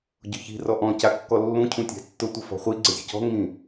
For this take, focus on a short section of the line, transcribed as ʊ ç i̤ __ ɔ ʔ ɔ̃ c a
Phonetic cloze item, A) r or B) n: A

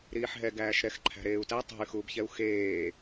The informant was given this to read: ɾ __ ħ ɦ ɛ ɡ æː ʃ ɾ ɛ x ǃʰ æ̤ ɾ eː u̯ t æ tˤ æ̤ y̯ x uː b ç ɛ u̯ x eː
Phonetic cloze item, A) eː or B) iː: B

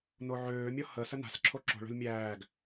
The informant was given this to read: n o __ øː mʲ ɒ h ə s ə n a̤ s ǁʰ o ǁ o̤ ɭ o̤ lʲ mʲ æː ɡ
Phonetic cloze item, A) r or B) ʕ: B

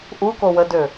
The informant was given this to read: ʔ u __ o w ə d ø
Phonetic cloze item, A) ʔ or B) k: B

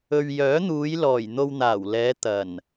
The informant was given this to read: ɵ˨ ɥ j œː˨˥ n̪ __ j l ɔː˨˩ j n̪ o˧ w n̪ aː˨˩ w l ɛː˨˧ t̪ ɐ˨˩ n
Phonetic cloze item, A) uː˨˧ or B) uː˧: A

